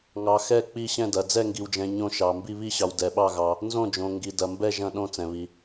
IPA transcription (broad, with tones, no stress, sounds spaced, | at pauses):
ŋ ɑ˨ x ɛ˦˨ k͡p i˦˨ ɕ ɛ̃˦˨ d ɐ˨ d͡z ɛ˦˨ ŋ ɡ i˨ w d͡ʒ ɛ̃˨ ɲ õ˦˨ ʃ ɑ˨ m b i˦˨ β i˦˨ ɕ ɑ˨ w d ɛ˨ ɓ ɑ˦˨ ɣ ɑ˨ | n z õ˦˨ d͡ʒ õ˨ ŋ ɡ i˨ d ɐ˨ m b ɛ˦˨ ʒ ɐ̃˦˨ ɗ õ˦˨ t͡s ɛ̃˨ β i˨